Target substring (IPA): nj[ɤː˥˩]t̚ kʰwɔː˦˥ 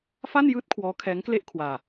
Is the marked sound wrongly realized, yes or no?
yes